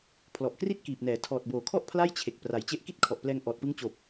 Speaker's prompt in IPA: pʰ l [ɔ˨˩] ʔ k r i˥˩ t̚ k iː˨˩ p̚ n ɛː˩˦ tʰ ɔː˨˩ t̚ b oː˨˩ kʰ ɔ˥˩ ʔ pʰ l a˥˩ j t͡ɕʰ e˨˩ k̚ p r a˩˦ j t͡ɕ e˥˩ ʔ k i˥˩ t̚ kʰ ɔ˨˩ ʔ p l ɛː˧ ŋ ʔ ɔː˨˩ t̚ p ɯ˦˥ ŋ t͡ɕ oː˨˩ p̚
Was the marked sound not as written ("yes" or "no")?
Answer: no